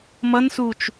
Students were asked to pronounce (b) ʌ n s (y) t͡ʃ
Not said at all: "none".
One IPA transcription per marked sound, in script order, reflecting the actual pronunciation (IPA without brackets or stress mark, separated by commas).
m, u